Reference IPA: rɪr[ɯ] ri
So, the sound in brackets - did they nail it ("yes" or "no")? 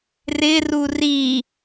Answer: no